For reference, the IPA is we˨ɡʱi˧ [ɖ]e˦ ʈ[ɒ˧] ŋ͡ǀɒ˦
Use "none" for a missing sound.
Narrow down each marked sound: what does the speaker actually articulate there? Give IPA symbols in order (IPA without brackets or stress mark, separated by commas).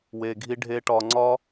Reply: ɖʱ, ɒ˧